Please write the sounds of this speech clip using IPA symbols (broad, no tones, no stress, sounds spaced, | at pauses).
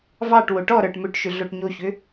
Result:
v ɑ ʈ w o ʈ ɔ ɾ ə˞ ʈ m ʏ ʈ ʃ ʏ ɮ o ʈ ɲ o ç ʏ